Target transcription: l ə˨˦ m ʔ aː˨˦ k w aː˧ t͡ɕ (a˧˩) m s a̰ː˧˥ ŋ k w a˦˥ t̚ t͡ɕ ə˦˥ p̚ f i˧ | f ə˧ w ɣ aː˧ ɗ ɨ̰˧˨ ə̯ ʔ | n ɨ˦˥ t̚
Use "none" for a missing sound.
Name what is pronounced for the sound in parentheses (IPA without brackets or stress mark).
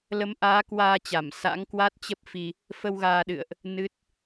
a˧˩